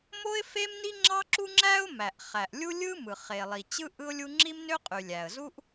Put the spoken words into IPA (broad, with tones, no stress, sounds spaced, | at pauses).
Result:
m o˥ ɪ̯ f e˥ m n i˥ ŋ͡ǁ ɑ˥ ǁ u˥ ŋ͡ǁ æ˥ ʊ̯ m æ˩ ʔ χ æ˩ ʔ lʲ u˥ lʲ ɯ˥ m ɯ˩ χ e˩ lˠ i˩ t͡ɕ ɯ˥ ʔ ɯ˥ ʊ̯ lʲ u˥ ŋ͡ǁ i˥ m n ø˥ qʼ y˩ lʲ æ˩ ə̯ z u˥ ʔ